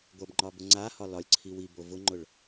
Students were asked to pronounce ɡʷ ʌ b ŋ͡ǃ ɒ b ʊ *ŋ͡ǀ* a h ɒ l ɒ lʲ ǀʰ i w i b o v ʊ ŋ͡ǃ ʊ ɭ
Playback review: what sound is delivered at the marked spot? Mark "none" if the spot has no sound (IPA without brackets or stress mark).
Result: ŋ͡ǀ